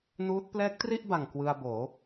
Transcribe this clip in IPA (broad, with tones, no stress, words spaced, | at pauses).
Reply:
nuː˦˥t̚ plɛː˦˥k̚tri˥˩ʔba˨˩ŋ kwɯ˧a̯boː˩˦